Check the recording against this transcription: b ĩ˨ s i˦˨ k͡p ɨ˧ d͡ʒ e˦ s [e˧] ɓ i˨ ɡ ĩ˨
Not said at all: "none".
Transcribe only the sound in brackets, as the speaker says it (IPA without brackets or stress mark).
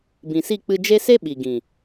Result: e˦